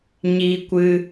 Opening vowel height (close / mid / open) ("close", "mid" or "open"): close